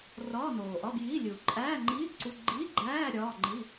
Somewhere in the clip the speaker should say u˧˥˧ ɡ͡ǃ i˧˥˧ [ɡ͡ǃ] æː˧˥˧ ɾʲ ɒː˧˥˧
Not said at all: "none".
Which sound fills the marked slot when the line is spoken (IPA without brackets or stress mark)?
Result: ɡ͡ǃ